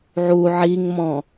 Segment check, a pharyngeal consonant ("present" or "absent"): present